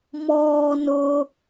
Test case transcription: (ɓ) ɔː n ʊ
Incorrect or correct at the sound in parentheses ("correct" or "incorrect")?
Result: incorrect